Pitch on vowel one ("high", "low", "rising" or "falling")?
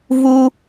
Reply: high